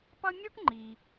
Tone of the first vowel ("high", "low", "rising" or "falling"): high